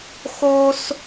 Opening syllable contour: high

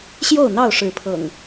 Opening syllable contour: falling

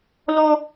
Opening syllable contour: high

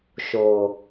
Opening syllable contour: low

